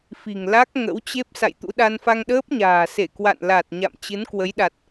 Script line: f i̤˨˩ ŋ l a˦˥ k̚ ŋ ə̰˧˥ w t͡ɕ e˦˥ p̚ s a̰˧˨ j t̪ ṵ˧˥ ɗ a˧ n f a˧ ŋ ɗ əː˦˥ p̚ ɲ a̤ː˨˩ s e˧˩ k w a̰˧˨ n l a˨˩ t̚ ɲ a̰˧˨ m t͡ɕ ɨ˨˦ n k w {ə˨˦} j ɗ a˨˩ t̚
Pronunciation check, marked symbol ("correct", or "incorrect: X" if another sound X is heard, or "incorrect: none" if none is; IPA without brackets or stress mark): correct